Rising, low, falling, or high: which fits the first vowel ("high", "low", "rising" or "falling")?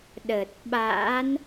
low